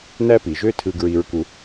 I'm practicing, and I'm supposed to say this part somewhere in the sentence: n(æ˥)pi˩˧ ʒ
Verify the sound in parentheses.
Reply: correct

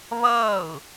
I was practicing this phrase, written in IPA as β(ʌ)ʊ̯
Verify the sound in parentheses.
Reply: incorrect: ʌː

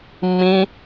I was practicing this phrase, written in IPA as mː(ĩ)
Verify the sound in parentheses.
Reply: correct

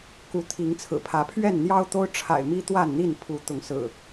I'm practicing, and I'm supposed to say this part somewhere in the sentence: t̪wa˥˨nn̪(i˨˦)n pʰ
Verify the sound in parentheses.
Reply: incorrect: i˥˨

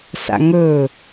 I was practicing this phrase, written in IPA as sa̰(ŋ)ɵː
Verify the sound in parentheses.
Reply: correct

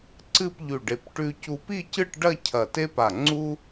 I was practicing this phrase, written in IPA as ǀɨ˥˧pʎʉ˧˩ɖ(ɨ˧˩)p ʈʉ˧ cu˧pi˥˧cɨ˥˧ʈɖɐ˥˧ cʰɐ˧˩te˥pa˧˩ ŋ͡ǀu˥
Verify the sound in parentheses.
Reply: incorrect: e˧˩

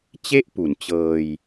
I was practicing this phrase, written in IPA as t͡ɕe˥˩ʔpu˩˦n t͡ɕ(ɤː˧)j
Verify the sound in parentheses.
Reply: correct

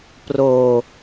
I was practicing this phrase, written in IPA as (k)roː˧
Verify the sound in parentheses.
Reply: incorrect: p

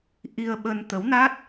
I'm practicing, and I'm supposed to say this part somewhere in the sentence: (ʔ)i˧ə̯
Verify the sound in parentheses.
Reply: correct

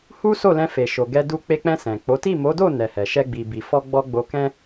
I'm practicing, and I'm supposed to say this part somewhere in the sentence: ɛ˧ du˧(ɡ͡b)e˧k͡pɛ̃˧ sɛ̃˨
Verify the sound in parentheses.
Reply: incorrect: k͡p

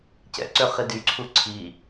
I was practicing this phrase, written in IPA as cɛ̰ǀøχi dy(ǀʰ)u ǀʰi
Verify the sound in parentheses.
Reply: correct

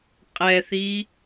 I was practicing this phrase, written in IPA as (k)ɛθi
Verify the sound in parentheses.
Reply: incorrect: qʼ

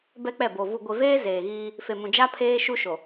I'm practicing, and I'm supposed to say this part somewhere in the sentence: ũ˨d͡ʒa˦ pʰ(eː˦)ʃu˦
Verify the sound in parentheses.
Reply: correct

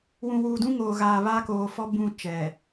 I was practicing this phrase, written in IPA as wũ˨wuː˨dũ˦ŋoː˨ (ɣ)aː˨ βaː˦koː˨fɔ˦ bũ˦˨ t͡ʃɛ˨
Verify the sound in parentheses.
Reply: correct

